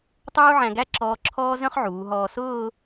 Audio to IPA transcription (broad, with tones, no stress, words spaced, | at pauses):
tˤuː˥ʕæ̃˧ɡæ˥ ǁɔː˧ǁʰɔː˥ zœ̃˥χʕuː˩˧ɦɔː˧ sʊː˥˧